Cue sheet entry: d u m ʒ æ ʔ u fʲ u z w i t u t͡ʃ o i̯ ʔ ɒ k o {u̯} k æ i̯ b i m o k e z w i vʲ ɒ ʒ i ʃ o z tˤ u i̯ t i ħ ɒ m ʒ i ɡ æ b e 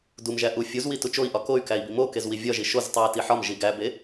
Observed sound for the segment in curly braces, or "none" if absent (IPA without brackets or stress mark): y̯